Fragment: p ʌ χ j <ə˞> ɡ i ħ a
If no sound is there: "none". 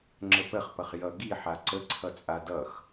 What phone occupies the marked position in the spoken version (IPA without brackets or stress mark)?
ʌ